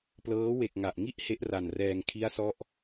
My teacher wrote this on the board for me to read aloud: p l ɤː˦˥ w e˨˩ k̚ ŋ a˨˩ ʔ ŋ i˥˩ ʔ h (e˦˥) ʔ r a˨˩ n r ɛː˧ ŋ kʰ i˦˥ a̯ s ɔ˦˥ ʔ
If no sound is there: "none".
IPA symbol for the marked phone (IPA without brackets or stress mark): e˦˥